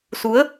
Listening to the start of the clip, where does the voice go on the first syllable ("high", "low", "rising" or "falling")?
rising